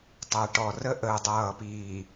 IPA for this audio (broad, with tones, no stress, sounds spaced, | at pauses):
tˤ ɜ˨ ʈ ɔ˨ r ə˦ ʔ əː˨ dˤ ʌː˨ p iː˨